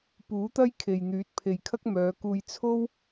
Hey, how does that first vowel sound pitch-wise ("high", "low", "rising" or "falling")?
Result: rising